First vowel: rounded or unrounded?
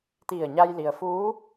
unrounded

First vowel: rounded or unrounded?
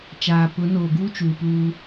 unrounded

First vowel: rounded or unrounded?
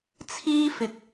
unrounded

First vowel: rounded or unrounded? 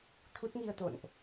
rounded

